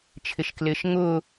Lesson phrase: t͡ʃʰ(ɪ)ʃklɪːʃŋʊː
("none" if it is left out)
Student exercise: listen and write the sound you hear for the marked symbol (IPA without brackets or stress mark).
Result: ɪ